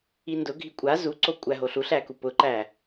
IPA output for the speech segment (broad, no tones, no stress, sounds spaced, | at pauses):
i n d ʊ ɡʱ i kʷʼ a z u ǀ o kʷʼ æ ɦ o ɬ u ɬ æ k u p ʊ ǃ æ